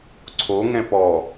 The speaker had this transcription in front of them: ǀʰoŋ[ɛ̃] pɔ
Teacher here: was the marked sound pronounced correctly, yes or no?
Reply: yes